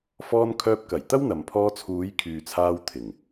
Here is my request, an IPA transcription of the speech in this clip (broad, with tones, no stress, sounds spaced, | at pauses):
f ɔː˧ n kʰ œː˧ p̚ k ɐ˨˩ j t̪ ɐ˥ w n̪ ɐ˨ m pʰ ɔː˧ t͡sʰ uː˨˧ j kʰ yː˨ t͡sʰ aː˧ w t̪ʰ ɪ˨˩ ŋ